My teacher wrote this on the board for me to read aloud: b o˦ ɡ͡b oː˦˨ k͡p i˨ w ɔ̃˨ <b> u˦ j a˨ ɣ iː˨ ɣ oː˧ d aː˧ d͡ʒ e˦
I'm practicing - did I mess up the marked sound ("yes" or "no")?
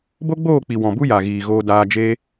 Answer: no